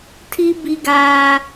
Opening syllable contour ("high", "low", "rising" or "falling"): high